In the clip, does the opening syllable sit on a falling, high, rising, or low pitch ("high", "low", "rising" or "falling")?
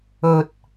low